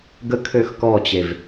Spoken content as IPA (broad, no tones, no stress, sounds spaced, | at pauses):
ɡ ə kʰ ø x k ɔ t͡ɕ e v